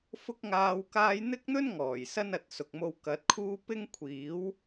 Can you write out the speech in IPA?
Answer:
f ʊ˥ k̚ ŋ aː˧ w k aː˧ j n̪ ɪ˥ k̚ n̪ ɵ˥ n ŋ ɔː˨˩ j s ɐ˥ n ɐ˨ t̚ s ʊ˨ k̚ m o˧ w k ɐ˨˥ t̚ kʰ uː˥ p ɪ˥ ŋ kʷʰ iː˨˥ w

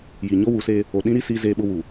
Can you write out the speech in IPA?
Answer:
j i˨ ɲ o˦ w u˨˦ s eː˦ | o˨ ɗ ĩ˦ ɾ i˦ s iː˦ z eː˦ ɓ ʊ˦ w u˨

